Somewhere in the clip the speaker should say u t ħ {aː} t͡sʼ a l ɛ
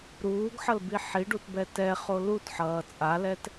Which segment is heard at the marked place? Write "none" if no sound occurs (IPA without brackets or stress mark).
ʌː